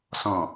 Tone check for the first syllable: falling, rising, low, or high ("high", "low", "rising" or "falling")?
low